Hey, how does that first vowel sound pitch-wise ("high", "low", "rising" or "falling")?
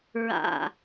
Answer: low